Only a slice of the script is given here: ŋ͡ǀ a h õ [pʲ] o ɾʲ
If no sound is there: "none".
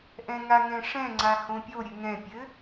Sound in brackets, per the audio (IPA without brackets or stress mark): pʲ